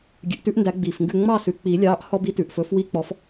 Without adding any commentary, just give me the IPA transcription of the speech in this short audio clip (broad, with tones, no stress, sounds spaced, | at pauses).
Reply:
ɡʲ ʉ˨ ʔ t ʉ˦ ʔ n d æ˨˩˦ ɡ͡b iː˨ f ŋ ɡ ʉ˥˨ ŋ͡m ɑ˥˨ s ʉ˨ k͡p iː˨˩˦ lʲ ɑː˨˥ ʔ h ɔ˦ b i˨˥ t ʉ˨ ʔ f ɵ˨˥ f w i˦ k͡p ɔ˨˥ f